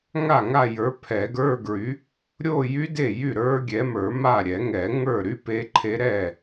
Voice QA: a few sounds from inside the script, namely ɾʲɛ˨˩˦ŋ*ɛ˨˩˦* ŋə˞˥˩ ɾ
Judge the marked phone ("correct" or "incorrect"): correct